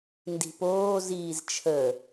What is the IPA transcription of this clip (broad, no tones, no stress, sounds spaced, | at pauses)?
n d i̤ p oː z iː z t͡ʃʰ ə